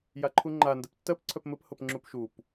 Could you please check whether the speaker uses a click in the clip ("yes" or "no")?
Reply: yes